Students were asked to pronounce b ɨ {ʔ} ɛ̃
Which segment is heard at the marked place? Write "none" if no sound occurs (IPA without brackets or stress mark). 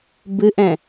ʔ